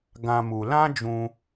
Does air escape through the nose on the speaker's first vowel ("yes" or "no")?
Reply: yes